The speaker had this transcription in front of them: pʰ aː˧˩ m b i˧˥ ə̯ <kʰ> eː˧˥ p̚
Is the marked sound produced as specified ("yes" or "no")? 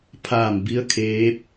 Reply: yes